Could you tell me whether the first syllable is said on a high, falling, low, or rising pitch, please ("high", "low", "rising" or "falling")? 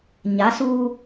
rising